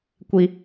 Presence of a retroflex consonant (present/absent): absent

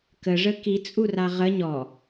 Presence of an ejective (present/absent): present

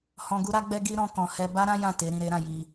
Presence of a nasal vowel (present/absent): present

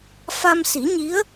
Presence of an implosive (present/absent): absent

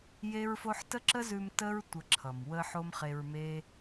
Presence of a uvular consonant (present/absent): present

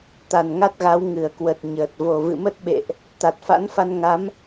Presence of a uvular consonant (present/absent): absent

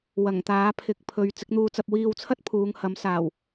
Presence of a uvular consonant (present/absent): absent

